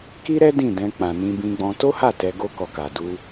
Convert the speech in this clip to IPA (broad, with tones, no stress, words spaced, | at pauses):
ki˦ɾɛ˦ dĩ˦˨dɛ̃˧k͡pã˨ nĩ˧bĩ˧ɡ͡bɔ̃˧ to˦ha˦˨ tɛ˧ ɡo˦kɔ˧ka˨ du˧